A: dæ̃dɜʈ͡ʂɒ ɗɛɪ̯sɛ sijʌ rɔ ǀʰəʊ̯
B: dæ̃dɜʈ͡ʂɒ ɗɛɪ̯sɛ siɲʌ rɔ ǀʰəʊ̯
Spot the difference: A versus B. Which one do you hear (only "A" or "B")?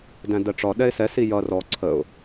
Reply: A